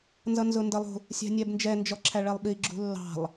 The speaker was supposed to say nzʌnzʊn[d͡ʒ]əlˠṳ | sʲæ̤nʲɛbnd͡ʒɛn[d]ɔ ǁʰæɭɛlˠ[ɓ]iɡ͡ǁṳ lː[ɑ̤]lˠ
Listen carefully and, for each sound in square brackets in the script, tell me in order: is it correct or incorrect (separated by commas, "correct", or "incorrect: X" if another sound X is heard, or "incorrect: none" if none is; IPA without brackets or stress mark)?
incorrect: d, incorrect: d͡ʒ, correct, correct